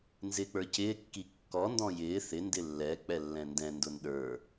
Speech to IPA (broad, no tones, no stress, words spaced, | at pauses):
nzɪːk͡pə˞cɪː kːikːɔ ndɔ̃jɪː θɪ ndɪlːɛ k͡pɛlːɛ̃ndɛ̃ ndʊnɗə˞